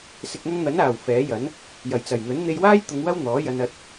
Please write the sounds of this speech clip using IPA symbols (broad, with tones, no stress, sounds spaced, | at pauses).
s ɪ˨ k̚ ŋ ɐ˧ ŋ n̪ ɐ˨˥ n aː˨˩ w f ɛː˨˥ j ɐ˨˥ n | j ɐ˨˩ j t͡s ɐ˨˩ j n̪ ɵ˨˥ n n̪ e˧ j w aː˥ j t̪ ʊ˨˧ ŋ w ɐ˥ w n̪ ɔː˨˥ j ɐ˧ n ɐ˧ t̚